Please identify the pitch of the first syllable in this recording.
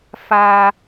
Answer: high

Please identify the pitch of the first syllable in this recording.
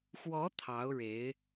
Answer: rising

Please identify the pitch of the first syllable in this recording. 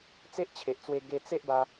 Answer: high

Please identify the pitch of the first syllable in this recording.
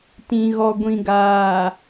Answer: low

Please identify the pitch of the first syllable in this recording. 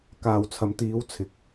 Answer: low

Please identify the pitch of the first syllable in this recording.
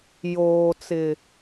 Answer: low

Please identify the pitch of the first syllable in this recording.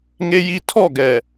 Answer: high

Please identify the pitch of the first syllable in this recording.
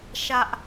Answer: high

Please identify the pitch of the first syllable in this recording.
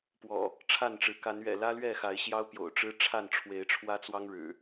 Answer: low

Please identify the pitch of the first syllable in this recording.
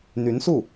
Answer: rising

